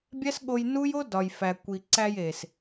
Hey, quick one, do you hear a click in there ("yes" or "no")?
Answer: yes